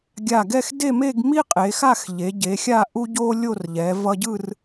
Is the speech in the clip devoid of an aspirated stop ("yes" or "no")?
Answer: yes